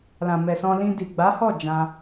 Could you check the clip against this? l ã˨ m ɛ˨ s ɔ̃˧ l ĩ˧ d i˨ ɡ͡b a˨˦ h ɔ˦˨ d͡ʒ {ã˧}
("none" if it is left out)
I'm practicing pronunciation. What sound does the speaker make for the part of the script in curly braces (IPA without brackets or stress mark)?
ã˧